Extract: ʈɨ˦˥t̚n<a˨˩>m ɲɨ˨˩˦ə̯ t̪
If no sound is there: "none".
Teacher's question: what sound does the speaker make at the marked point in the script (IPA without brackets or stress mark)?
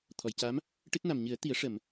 a˨˩